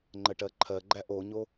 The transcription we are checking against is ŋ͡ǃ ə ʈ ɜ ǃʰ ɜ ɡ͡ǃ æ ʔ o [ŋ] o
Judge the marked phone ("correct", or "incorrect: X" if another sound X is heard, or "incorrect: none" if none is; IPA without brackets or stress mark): incorrect: ɲ